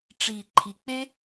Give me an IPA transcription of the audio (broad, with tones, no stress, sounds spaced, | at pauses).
ʈ͡ʂ i˨ ǃʰ i˨ k͡p e˦